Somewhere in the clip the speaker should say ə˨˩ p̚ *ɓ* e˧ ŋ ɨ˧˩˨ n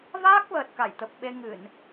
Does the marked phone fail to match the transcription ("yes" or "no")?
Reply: no